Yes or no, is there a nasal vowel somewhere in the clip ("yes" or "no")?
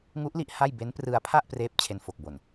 no